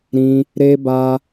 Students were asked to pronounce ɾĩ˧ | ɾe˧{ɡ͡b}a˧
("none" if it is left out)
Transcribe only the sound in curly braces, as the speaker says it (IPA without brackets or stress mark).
b